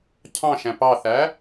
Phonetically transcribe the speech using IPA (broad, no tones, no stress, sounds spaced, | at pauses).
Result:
cʰ ɑ̃ ʃ æ̃ p ɑ θ æ